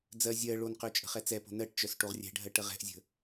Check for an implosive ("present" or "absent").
absent